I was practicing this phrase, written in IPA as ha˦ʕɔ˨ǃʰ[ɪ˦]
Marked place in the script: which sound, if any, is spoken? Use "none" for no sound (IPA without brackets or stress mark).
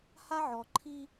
i˦